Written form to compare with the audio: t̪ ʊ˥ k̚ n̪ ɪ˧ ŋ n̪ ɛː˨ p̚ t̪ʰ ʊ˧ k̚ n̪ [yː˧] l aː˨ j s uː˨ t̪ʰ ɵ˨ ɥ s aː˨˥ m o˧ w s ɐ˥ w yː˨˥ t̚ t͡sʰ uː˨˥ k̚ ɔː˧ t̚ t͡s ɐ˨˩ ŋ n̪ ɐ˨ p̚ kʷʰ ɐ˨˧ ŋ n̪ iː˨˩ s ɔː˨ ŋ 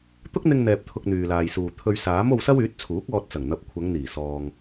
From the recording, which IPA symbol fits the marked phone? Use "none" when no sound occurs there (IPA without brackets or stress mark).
yː˨